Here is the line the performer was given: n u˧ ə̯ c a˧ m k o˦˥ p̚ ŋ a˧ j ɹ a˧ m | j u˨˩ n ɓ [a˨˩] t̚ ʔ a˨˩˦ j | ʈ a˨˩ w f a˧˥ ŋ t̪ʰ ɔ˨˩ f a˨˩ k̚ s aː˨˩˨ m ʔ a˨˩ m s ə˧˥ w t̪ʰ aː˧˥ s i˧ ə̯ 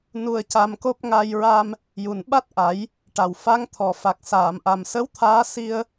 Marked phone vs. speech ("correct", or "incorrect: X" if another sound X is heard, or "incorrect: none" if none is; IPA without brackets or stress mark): incorrect: a˦˥